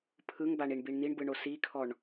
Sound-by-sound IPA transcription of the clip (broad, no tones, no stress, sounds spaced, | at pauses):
pʰ ɯ ŋ b a ɳ i ɳ b i ɳ n̪ i ɳ b ɯ ɳ o s i kʰ ɔ ɳ